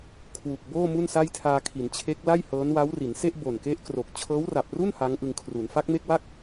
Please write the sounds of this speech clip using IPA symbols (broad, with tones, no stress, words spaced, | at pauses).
kʰwu˨˩k̚ boː˥˩ mu˥˩nsa˥˩jtʰaː˧kʰi˩˦n t͡ɕʰe˦˥k̚la˥˩jhɤː˦˥n wa˦˥wri˩˦nse˥˩ʔ bo˨˩nke˦˥ʔkro˨˩k̚ t͡ɕʰɤː˦˥wra˨˩p̚ru˥˩n ha˦˥ŋʔɯ˧ŋkʰru˩˦n fa˦˥k̚me˥˩k̚waː˥˩k̚